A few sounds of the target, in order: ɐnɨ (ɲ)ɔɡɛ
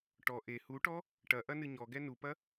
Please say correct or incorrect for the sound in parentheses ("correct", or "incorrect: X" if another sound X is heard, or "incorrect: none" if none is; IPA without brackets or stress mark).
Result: correct